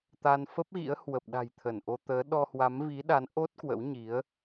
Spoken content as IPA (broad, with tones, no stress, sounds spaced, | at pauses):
t̪ a˧ n f ə˦˥ p̚ ɣ ḭ˧˥ ə̯ h w ə˨˩ p̚ ɗ a̤˨˩ j t̪ʰ ə˧˩ n ʔ o˧ t̪ əː˨˦ ɗ ɔ˧ h w a˨˦ m v i˨˦ ɗ a˨˦ n ʔ o˦˥ t̚ k w ə̰˧˥ w ɲ i˨˦ ə̯